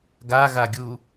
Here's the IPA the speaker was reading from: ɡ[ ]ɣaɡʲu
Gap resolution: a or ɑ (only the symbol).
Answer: a